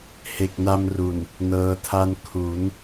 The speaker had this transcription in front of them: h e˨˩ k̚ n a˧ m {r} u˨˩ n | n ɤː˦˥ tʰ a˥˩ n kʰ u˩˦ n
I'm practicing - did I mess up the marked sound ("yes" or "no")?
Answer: no